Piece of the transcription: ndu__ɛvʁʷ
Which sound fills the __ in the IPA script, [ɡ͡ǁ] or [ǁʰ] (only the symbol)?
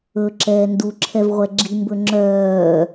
ǁʰ